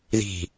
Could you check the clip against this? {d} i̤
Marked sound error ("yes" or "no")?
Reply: yes